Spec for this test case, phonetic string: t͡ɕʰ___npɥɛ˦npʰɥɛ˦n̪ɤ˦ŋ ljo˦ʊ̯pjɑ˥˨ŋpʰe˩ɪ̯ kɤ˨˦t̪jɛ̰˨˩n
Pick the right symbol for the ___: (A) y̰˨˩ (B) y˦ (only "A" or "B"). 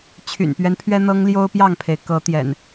A